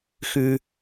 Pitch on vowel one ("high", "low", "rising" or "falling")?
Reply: low